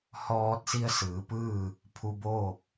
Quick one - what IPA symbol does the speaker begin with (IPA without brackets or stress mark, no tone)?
h